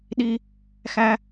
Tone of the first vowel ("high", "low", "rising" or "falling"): high